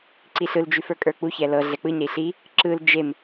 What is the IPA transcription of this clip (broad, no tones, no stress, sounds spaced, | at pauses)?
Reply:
ǀ i ɬ ɯ l d͡ʒ ʉ f ə˞ kʼ ə˞ k͡p u ç ɛ l ɤ ɮ ɛ k͡p ɯ ɲ ɾ i ɬ i | ǁ ɯ l d͡ʒ e m